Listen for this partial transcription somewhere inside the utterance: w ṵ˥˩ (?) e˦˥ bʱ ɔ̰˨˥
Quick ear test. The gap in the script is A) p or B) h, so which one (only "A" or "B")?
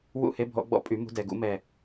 B